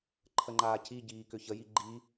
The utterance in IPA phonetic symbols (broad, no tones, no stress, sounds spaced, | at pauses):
ǃʰ ə ŋ͡ǃ aː c i ɟ iː k ʏ ç ə j i ɡ͡ǃ i